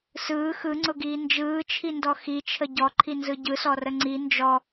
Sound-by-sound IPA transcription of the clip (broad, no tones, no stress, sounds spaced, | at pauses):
s ɯː x ɯ ŋ͡ǀ ʊ ɡ iː n d͡ʒ ɯː t͡ʃʰ i n d ɔ x i t͡ʃʰ ə ɟ ɔ ǃʰ i n z ɯ ɟ ɯ s ɔ r ə ŋ͡ǀ i n d͡ʒ ɔ